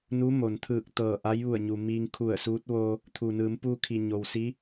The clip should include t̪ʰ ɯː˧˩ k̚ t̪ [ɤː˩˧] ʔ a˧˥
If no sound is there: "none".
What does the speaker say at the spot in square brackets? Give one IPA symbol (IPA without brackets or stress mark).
ɤː˧˩